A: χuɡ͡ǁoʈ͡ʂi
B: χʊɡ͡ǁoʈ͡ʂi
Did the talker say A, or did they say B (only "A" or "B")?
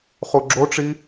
A